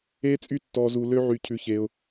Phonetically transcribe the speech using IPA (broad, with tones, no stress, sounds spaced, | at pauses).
eː˦ t͡sʼ y˦ tː ɔː˧ z uː˧ lː ø˦ ʕ y˧ cʰ ʉ˧ ç eː˧ ʊ̯